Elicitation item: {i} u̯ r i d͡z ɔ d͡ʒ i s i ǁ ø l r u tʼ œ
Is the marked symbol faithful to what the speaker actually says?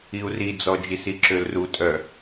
yes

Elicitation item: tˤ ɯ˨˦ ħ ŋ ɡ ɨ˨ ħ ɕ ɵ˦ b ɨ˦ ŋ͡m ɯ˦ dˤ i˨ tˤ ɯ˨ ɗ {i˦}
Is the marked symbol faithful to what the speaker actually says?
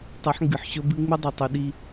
yes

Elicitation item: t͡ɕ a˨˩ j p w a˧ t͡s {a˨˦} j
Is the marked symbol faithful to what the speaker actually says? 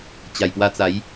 yes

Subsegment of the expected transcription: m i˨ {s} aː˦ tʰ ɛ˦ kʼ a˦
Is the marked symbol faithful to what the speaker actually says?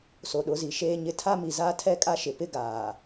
no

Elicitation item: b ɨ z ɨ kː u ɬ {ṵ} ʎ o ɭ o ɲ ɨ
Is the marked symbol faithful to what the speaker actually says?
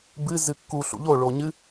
yes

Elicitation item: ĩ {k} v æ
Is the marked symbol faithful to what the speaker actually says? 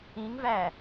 no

